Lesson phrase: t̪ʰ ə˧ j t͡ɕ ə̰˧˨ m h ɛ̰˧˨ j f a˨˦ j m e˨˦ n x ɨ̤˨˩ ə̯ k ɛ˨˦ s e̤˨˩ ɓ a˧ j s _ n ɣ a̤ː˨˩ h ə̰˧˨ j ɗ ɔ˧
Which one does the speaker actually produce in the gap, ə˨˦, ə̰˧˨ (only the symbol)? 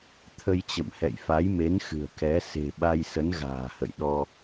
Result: ə˨˦